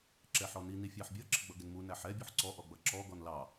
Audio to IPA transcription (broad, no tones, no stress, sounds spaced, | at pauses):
ǁ ɛ ħ ɔ n i n i fʲ ɑ ħ bʲ ʌ ǁ ɪ ɡ͡b ʌ ɡ ɪ n m u n æ ħ ɛ bʲ u ħ ǀ ɔ ʔ ɔ ɡ͡b ʌ ǁ ɔ ɡ ɔ n l ɑ